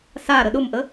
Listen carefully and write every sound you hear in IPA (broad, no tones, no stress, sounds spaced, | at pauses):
s a ɾ ə ɗ ʊ m ʔ ə